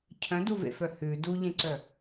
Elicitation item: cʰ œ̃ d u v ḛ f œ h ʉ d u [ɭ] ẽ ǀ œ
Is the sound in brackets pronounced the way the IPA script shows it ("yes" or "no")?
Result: no